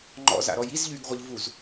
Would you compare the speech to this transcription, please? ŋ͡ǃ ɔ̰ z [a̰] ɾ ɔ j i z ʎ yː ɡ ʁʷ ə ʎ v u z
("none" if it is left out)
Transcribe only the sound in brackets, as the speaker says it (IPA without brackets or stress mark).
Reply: a̰